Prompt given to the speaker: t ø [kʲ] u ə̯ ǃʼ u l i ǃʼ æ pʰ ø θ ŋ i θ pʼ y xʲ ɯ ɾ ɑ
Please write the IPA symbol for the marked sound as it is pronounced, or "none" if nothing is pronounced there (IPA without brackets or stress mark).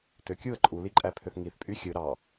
kʲ